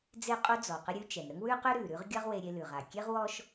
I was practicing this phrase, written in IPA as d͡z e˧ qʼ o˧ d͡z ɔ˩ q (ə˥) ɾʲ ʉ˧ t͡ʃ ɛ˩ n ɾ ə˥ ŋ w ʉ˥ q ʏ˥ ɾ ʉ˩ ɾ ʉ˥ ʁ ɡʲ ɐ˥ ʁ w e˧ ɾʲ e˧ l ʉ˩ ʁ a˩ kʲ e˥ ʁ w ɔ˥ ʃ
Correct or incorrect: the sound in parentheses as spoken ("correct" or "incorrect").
incorrect